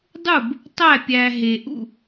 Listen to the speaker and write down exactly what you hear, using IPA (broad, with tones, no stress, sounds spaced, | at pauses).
dˤ u˥˩ b | tˤ æ˥˩ pʲ æ˨ ɦ e˨ ʔ ṵ˥˩